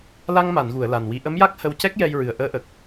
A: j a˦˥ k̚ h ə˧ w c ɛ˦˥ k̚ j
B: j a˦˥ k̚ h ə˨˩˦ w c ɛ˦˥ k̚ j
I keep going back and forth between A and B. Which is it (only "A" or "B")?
A